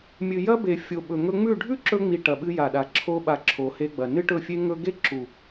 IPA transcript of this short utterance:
mʲ ɨ˨ j ɐ˦ b e˨ fʲ o˨ ɓ ɵ˨ ŋ ɵ˧ ŋ͡m ʉ˦˨ ɖʱ ʉ˦ ǁ ɵ˧ ŋ͡m i˨ ʈ ɐ˨ ɓ ɨ˧ j a˨ ɗ a˨ ǁʰ o˦ ɓ a˧ ǁʰ o˨ h e˧ ɡ͡b ɐ˨ n ɨ˦ ʈ ɵ˦˨ fʲ e˦ ŋ ɵ˦ ɡ e˦ ǁ u˨

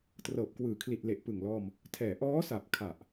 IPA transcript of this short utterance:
t r ɤː˨˩ p̚ k w ɯː˨˩ kʰ l i˨˩ t̚ l e˨˩ ʔ p ɯ˨˩ ŋ l ɔː˧ m | tʰ ɛː˨˩ ʔ ɔː˦˥ s a˨˩ p̚ kʰ a˨˩ ʔ

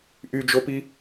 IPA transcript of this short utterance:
ʔ y d͡ʒ o p i

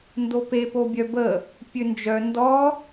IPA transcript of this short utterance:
n d o p e p o bʲ œ b ə | pʲ ø n d͡ʒ œ n d ɔ

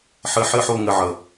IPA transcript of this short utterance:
ħ ɘ˧ ħ ɘ˥˧ ħ o˥˧ ŋ ɘ˧ ʕ ə˩

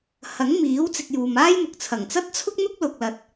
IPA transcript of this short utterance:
h ɐ˨˥ ŋ m iː˨˥ w t͡s ɪ˧ k̚ j uː˨ m aː˥ j m ʊ˨ k̚ t͡sʰ ɐ˨˩ ŋ t͡s ɐ˥ t̚ t͡sʰ ʊ˥ k̚ n̪ ʊ˥ k̚ l ʊ˨ k̚ l ɐ˨ t̚

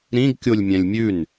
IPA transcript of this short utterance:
ɾ ĩ ɡ kʲ o lʲ mʲ ɛ̃ lʲ mʲ ʉ n

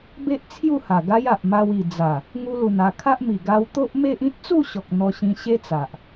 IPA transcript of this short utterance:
b e˦ ʔ t͡sʰ j u˥˧ h a˨˩ ɡ a˦ j a˨ ʔ m a˧ w i˨˩ d͡z a˨˩ | ŋ u˧ l u˨˩ n a˨˩ kʰ a˦ ʔ m i˨˩ ɡ a˧ w t̪ o˦ ʔ m e˦ ʔ ĩ˦ t̚ t͡s u˥˧ ɕ ɔ˨ k̚ n̪ ɔ˧ ɕ ĩ˧ ɕ e˦ t͡s a˨ ʔ

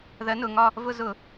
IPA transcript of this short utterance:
ð ɜ˨˥ n ʊ˩˧˩ ŋ ɒ˥˧ | v ʊ˥˧ z ʊ˧˩˧

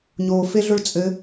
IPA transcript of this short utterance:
ɲ o f e ɮ ʊ ɭ t͡sʼ ɘ

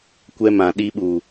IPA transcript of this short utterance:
kʷ ɛ˦ m ã˨ ɗ i˦ ɓ u˨

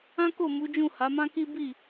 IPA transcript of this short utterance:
ã˦ k o˦˨ m u˨˦ d͡ʒ ũ˦˨ h a˨˦ m ã˦ k i˦ b i˦˨

